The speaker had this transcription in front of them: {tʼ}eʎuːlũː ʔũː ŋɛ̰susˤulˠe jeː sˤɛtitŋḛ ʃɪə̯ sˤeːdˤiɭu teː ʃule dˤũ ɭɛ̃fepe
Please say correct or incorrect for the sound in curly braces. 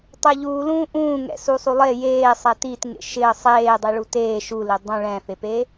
incorrect